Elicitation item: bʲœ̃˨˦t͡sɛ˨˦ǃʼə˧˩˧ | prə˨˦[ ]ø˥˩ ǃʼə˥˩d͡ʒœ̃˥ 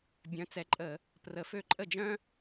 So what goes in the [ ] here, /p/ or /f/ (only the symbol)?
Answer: f